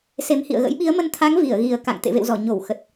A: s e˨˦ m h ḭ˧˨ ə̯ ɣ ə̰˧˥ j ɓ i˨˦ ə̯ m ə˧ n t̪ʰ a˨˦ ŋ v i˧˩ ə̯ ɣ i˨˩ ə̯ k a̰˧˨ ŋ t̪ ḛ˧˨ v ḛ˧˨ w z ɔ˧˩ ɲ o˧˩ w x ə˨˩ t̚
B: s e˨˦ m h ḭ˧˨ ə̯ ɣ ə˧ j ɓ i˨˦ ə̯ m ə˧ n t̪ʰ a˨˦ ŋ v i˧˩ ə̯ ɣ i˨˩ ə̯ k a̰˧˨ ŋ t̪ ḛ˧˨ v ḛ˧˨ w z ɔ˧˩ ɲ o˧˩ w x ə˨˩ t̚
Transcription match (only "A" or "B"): A